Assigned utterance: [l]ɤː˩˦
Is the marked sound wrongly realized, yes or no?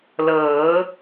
no